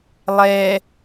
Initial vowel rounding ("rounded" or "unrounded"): unrounded